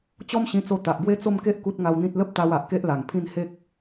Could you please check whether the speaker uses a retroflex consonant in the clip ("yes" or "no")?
no